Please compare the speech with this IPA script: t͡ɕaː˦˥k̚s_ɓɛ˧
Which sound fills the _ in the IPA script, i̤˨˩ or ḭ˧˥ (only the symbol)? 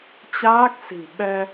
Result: i̤˨˩